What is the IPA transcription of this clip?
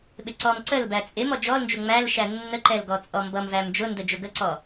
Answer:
ɓ ɪ ǀ ɔ m ǀ ə l b æ t͡sʼ ɪ m ɔ d͡ʒ ɔ l n d͡ʒ ʊ ŋ͡m æ l ʃ æ nː ə ǃ ɛ l ɡ ɔ t͡sʼ ɔ m b ʌ m v æ m d͡ʒ ʊ n d ə d͡ʒ ʊ ɡ ə ǀ ɔ

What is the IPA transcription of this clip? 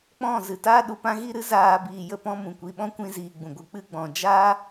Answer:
k͡p ɔ̃˦˨ z ɨ˨ t aː˦ ɗ u˨ p ã˧ ɣ i˦˨ ɾ ɨ˦ z aː˧ b iː˨ j ə˧ p ɔ̃˧ m ũ˨ kʷ i˨ ɓ ɔ̃˦ kʷ ĩ˦ z iː˧ ɡ͡b ũ˨ ɡʷ ɨ˨ k͡p ɨ˧ ɡ͡b ɔ̃˨ d͡ʒ aː˦

